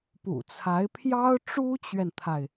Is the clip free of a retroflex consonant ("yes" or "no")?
no